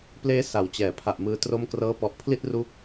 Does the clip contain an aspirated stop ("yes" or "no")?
yes